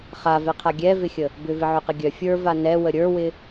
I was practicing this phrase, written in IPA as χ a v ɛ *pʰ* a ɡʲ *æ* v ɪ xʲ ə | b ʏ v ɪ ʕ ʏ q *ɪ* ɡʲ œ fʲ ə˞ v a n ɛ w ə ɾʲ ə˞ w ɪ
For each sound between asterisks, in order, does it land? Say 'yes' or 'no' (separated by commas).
no, no, yes